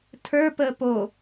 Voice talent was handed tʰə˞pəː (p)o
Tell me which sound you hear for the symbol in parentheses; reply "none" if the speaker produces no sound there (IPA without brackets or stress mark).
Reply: p